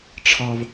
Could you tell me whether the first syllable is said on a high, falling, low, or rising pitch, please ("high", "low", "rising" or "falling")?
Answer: high